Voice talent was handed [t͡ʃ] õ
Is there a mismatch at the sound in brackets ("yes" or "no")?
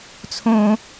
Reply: yes